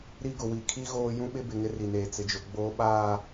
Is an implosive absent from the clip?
no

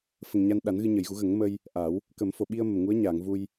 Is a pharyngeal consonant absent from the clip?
yes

